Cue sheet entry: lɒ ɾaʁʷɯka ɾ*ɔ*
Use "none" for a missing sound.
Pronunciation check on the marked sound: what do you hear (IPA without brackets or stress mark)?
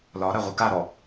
ɔ